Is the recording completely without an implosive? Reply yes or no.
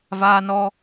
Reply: yes